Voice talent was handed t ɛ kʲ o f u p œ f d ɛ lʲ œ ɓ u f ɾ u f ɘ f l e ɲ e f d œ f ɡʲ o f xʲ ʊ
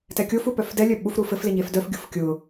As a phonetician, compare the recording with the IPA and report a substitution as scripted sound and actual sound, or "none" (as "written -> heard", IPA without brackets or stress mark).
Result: xʲ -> kʲ